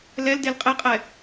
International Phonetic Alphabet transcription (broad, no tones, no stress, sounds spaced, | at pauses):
l ɛ l d e l qʼ e qʼ ɛ